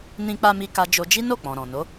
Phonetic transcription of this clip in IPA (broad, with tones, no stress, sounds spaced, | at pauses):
n ĩ˧ k͡p a˧ m i˧ k a˧ d͡ʒ o˧ d͡ʒ i˦ n o˦˨ k͡p ɔ̃˨ ɾ ɔ̃˨ n o˨˦